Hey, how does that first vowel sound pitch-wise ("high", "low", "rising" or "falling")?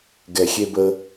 low